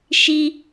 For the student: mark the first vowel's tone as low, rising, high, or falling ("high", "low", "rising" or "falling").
high